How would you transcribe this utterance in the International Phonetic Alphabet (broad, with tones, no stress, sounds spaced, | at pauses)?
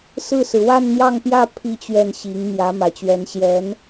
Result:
s ɹ̩˥˩ s ɹ̩˩ w a˥˧ n n̪ j ɑ˥˧ ŋ p j ä˥˧ pʰ i˥˧ t͡ɕ ɥ ɛ˥˩ n ɕ i˧˥ ŋ m j ä˧˥ m ä˨˩ t͡ɕ ɥ ɛ˧˥ n ɕ j ɛ˧˥ n